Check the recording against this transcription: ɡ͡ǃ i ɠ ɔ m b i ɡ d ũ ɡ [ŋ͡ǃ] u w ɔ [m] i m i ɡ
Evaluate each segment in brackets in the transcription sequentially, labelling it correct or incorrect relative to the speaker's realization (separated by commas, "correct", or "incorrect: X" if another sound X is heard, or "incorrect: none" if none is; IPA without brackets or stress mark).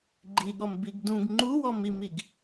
correct, correct